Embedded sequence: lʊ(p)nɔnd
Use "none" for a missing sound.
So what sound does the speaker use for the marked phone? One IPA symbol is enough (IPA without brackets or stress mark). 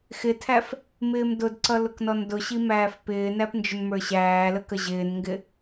k